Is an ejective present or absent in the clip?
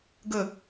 absent